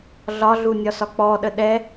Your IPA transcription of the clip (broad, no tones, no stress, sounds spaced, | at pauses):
ɮ ɒ ɮ u nʲ ɒ s ɒ k͡p ɔ ɗ ə ɗ ɛ